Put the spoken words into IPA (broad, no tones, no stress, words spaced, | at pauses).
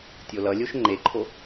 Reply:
tʲolʌlʲoʃ ŋ͡ǃeǃʰo